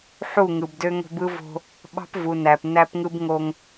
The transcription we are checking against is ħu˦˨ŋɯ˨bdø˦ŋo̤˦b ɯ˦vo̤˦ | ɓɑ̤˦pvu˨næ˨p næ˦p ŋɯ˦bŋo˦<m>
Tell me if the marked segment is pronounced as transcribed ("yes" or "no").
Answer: no